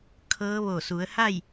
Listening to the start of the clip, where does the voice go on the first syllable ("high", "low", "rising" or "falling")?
rising